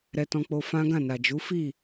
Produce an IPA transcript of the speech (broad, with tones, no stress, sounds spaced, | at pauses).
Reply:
ɾ ɛ˧ t ɔ̃˧ k͡p o˧ f ã˦ ɡ ã˦˨ n a˨ d͡ʒ u˨˦ f i˦˨